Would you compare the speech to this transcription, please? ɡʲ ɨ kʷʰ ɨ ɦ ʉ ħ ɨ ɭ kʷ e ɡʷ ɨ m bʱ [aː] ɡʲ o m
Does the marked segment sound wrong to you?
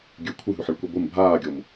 no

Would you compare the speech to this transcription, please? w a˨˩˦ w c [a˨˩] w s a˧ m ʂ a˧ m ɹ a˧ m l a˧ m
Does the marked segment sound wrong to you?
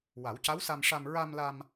yes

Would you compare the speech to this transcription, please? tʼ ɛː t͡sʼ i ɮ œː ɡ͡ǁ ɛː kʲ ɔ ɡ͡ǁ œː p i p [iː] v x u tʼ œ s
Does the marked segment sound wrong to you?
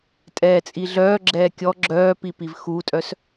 yes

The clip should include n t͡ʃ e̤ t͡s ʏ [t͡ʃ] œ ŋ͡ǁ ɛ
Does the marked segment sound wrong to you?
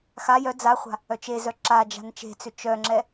no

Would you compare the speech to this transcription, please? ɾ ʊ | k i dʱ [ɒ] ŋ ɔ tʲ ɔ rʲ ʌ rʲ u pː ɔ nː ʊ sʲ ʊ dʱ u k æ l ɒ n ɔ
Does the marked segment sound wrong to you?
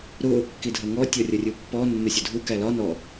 yes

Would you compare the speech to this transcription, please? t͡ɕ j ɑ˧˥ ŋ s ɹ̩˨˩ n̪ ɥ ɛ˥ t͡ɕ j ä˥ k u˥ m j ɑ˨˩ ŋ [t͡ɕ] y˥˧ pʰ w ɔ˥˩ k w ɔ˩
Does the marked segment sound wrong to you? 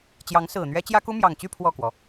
no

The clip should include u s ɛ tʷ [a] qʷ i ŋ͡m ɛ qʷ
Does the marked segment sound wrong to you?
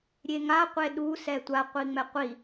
no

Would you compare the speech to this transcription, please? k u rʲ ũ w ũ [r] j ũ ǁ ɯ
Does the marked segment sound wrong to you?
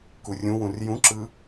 no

